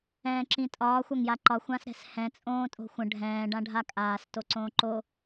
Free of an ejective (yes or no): no